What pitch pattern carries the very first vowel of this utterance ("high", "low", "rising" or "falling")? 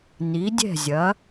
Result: rising